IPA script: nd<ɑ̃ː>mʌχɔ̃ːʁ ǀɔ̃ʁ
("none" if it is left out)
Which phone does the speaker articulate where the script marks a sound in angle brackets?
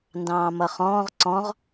ɑ̃ː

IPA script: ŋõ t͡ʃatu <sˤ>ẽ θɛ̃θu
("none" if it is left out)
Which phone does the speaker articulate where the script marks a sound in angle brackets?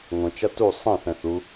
sˤ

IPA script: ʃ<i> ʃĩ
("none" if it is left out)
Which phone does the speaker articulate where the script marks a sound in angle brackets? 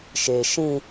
e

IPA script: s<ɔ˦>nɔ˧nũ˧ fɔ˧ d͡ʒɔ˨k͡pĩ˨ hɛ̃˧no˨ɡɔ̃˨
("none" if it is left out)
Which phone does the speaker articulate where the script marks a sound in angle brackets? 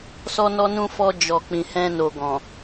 ɔ˧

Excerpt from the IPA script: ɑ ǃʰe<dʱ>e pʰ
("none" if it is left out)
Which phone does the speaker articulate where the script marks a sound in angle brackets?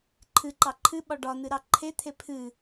t̪ʰ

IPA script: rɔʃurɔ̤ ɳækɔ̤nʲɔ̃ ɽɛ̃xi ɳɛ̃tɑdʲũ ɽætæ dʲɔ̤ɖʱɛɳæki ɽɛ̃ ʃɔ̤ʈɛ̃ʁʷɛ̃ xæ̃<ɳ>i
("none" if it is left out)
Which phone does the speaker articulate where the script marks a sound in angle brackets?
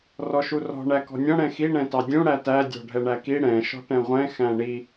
ɳ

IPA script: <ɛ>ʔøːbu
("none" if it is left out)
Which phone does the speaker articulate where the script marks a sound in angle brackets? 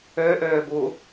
ø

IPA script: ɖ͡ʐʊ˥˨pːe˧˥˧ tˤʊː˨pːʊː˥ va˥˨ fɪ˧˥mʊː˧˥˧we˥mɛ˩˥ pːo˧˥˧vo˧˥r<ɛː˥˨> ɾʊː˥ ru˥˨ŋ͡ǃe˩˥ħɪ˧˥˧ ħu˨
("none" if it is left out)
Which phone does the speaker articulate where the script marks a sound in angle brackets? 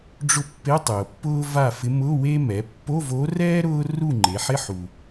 ɛː˥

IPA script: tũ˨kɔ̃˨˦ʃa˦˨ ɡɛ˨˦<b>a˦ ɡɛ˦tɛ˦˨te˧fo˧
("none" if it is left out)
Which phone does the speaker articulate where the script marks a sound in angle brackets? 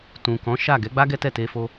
ɡ͡b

